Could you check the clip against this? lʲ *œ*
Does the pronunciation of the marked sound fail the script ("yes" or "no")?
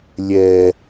yes